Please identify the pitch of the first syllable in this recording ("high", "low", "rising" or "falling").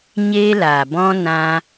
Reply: high